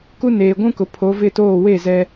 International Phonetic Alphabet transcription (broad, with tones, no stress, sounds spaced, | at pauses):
k u˦ n eː˨ ɡʷ ũ˦ k ʊ˨ pʰ o˨˦ v ɪ˦˨ t oː˦˨ w e˦˨ z ɛ˨